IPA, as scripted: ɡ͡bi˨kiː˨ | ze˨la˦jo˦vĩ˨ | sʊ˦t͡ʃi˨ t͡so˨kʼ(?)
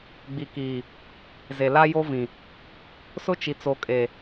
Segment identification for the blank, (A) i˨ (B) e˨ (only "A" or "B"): B